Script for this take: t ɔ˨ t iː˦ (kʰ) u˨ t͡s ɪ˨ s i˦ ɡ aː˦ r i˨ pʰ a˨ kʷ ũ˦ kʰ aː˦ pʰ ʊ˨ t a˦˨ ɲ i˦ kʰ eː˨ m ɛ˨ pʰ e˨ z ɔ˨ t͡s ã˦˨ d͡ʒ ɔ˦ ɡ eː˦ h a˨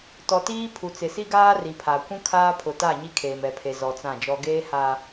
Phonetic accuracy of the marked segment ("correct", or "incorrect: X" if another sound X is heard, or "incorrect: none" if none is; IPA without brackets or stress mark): incorrect: pʰ